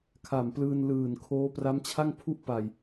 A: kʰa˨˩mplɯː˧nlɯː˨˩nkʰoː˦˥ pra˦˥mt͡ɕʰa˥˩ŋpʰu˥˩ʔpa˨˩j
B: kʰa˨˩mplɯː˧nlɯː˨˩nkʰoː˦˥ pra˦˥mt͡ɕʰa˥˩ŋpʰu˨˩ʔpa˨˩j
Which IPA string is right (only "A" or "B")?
A